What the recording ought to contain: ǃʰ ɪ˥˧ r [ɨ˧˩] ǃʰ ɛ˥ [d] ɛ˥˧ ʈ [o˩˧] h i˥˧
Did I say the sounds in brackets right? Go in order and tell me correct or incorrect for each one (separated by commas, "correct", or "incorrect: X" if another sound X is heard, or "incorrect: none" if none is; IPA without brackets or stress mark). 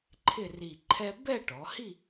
incorrect: i˧˩, incorrect: b, incorrect: ɔ˩˧